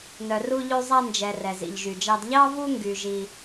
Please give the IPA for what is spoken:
nœ˨ru˧ʎʉ˧ zˤæ˧nd͡ʒɛ˨ rɛ˨zḭ˨ʎʒy˨d͡ʒɑ˧d ʎɑ˦vu˦ ŋɡy˧ʒi˧

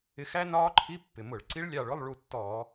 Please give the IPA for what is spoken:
ɪ˨˦xæ˦˥ nɒː˦˥ǃʰi˧˥˧pːɪ˨˩mʊ˧˩˧ɭ ǀi˦˥ɭlʲɑ˦˨ɭʊ˧˥˧lˠ ɭu˦˨tːɔː˧˩˧

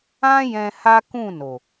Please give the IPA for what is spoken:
ã˦ jɛ̃˧ ha˦kũ˦˨no˨

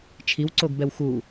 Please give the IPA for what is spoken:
t͡ʃʰiwǀoɡbɛw xu

